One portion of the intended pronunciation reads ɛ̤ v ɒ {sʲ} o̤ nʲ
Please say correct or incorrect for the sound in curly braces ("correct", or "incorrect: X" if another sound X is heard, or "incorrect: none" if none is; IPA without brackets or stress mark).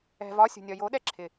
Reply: correct